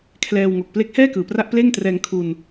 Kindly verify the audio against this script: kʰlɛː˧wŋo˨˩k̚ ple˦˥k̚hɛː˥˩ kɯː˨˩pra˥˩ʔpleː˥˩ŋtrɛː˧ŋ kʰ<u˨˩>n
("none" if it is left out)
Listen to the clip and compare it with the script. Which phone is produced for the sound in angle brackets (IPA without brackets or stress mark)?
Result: u˧